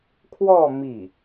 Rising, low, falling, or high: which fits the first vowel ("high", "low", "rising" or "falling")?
falling